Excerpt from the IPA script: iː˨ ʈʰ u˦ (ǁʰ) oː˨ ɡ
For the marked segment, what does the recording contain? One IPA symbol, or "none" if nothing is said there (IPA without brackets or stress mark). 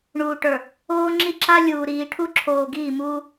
ǁʰ